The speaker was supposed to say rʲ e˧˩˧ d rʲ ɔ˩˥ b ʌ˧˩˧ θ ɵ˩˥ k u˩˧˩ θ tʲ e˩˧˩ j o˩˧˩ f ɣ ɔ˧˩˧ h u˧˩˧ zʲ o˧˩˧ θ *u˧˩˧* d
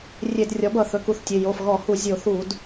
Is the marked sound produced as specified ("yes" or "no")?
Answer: yes